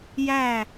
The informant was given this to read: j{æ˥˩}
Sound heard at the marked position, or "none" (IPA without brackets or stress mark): æ˥˧